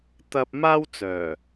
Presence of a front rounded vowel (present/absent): present